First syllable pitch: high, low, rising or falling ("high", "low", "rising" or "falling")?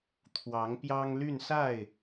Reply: rising